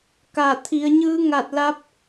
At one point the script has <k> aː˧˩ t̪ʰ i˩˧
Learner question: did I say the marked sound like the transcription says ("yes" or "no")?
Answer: yes